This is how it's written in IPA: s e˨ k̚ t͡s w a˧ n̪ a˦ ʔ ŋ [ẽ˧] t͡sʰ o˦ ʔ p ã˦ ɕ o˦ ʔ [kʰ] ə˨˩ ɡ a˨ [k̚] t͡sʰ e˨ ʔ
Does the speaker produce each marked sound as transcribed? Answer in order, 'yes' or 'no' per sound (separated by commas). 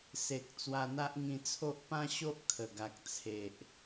no, yes, yes